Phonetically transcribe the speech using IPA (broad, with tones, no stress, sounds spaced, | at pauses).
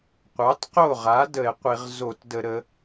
qʷ ɑ˩˥ t q o˥˩ ʁ a˩˥ d ə˧˩˧ e̯ qʷ i˧˩˧ ʁ z o˧˩˧ t d ə˧˩˧ ɾ ə˩˧